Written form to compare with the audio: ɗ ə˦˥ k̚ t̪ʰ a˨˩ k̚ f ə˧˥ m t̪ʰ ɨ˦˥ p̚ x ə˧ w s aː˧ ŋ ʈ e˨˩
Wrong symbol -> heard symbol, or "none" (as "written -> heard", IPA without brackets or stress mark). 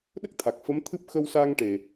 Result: none